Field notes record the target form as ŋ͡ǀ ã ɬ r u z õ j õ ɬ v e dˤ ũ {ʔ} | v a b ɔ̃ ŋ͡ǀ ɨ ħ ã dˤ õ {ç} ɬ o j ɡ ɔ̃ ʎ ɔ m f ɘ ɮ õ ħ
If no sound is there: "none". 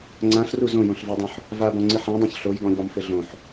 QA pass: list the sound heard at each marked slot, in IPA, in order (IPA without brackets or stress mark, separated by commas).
ħ, ç